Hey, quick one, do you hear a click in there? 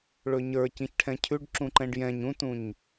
yes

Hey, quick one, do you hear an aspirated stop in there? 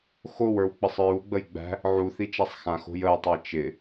no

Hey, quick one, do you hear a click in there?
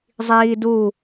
no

